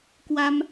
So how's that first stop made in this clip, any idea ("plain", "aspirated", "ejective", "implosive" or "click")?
plain